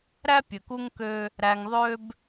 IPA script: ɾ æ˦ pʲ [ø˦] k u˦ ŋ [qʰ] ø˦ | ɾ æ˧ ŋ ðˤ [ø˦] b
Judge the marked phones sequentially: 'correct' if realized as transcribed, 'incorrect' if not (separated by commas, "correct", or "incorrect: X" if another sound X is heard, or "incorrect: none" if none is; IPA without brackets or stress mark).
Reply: incorrect: ø˨, incorrect: k, correct